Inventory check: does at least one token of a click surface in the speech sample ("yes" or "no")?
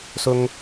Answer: no